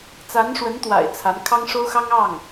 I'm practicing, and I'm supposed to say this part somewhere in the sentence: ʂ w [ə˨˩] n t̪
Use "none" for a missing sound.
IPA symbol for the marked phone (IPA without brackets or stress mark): ə˧˥